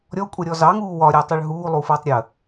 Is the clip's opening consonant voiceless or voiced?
voiced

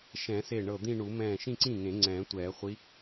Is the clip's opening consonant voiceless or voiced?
voiceless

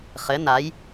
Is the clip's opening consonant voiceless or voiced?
voiceless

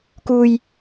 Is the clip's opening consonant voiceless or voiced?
voiceless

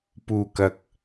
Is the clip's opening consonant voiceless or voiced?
voiceless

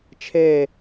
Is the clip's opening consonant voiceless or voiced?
voiceless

